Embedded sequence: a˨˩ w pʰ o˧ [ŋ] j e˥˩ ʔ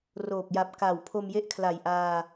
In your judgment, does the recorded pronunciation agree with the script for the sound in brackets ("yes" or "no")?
no